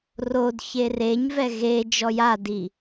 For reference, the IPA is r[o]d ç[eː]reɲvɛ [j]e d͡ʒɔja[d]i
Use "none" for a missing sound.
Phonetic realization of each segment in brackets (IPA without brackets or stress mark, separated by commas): o, e, ɣ, d